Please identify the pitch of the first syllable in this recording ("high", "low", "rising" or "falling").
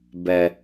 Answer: low